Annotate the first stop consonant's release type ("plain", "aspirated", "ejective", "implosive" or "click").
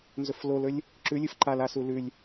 click